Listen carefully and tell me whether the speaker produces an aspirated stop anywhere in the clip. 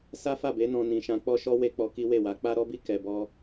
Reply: no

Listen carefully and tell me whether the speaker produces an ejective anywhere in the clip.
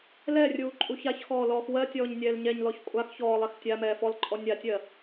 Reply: yes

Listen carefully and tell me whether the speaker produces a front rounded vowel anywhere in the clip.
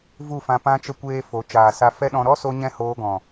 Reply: no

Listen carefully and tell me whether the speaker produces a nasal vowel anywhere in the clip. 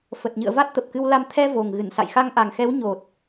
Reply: no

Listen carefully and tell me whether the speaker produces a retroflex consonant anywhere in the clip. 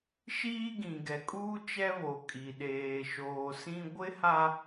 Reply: no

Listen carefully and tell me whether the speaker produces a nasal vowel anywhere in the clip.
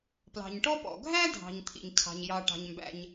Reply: no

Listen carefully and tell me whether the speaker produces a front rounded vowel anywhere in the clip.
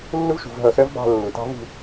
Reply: no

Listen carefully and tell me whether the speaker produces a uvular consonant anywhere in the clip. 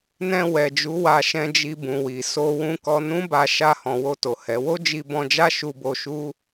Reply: no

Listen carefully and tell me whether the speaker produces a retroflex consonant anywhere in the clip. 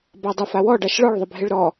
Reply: yes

